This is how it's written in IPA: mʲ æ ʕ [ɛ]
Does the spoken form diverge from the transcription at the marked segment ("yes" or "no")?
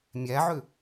yes